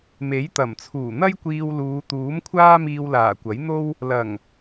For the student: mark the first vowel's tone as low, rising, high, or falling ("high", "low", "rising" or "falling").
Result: rising